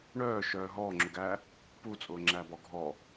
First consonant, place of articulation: retroflex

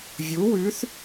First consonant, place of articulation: labial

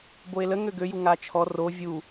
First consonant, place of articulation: labial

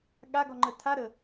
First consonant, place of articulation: velar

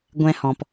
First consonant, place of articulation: velar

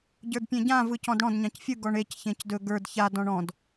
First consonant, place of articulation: palatal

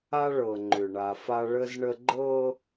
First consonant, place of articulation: retroflex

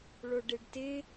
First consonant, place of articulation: retroflex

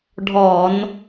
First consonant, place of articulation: retroflex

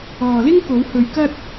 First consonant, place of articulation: alveolar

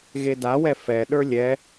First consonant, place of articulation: velar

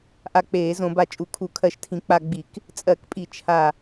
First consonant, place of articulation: glottal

